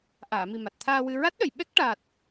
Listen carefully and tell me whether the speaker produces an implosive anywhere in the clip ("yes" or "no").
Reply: yes